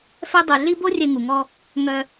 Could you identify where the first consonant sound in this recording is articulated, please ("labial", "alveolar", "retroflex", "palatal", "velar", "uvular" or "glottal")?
labial